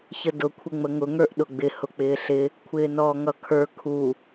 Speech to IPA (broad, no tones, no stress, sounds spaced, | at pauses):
ç ə d ʊ kʷʰ ɪ ŋ͡m ə ŋ ʊ ŋ ə˞ ʔ ɗ ʊ ɡ͡b ɪ h ʊ k͡p ɪː ɬ ɪ | kʷʰ ɪː n ɔː ŋ ʌ kʰ ə˞ kʰ u